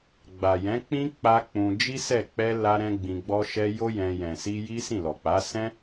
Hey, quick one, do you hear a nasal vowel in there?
yes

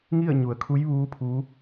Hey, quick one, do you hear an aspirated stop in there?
yes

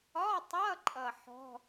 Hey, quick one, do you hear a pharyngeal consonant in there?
yes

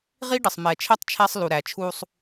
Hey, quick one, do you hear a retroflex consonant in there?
yes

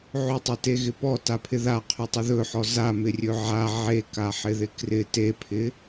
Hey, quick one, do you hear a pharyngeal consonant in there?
yes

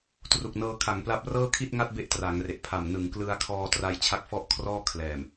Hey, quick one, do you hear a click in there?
no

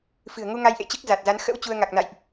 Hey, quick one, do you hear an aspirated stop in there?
no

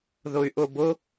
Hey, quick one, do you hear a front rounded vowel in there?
yes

